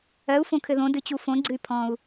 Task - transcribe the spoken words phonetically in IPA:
ɜ u̯ f õ kʰ ɘ ð õ d ɨ t͡ɕ u f õ ɡ͡ǀ ɨ y̯ pʰ ɔ̃ u̯

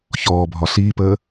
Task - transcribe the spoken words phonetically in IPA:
ç ɔː bʱ ɒ ɬ iː p əː

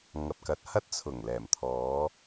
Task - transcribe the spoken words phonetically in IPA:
ŋ ɐ˨ p̚ k ɐ˨˥ t̚ h ɐ˥ t̚ t͡sʰ ʊ˨˩ ŋ l ɛː˨˩ m t̪ʰ ɔː˨˧

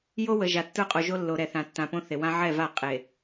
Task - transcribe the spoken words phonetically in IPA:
j o˦ w ə˨ ʒ a˨ tː ə˞˦ qʼ o˨ ʒ o˦ lː o˨ ɾ ɛ˨ θ ã˨ tː ã˨ p õ˦ θ e˨ w ã˦ ʕ ɛ˦˨ v a˦˨ qʼ e˨

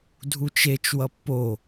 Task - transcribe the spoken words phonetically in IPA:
dʱ u t͡ʃ e t͡ʃ w ʌ pː o

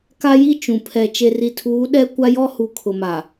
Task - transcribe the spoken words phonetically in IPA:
k a˦ j i˦˨ t͡ʃ ũ˨ pʰ ɛ˨ t͡ʃ e˨ r i˨ tʰ uː˨˦ ɗ ɛ˦ kʷ a˦ j ɔ˦ h u˨ kʰ ʊ˨ m a˨

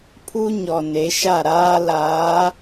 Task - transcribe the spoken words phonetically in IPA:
pʰ u˦ ɲ ɔ˨ n e˨˦ ʃ a˦˨ ɾ aː˦ l aː˨˦

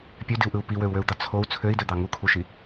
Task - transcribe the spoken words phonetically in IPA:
pʲ ø d i u̯ ʔ ɯ u̯ p i w ø u̯ w ø u̯ d̪ ɑ t͡sʰ o u̯ t͡sʰ ø i̯ d ø d̪ ɑ ŋ u kʰ u ʃ i

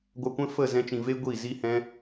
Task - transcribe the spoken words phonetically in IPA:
ɡʷ a˧ kʷ ɛ̃˦ f ə˦˨ z ɛ̃˧ t͡ʃ ĩ˨ v e˦ ɡʷ i˦˨ z i˦ h ɛ̃˦

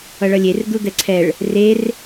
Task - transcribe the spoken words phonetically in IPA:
ʌ ɭ ʌ lʲ e r d̪ u d̪ ɛ ǀʰ ɛ ɭ | r e r

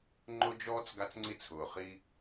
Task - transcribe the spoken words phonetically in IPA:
ŋ͡ǃ ʊ˦ d͡ʒ ɔː˦ t͡s ɡ a˦ t͡s ŋ͡ǀ i˦ t͡sʰ ʊː˨ χ i˦

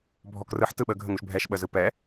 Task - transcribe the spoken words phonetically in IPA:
bʱ ɔ k r ɯ ħ t ɯ ɓ ə ɡʱ ə ŋ u ʃ bʱ ɛ ʃ ɓ ə z ɯ p ɛ

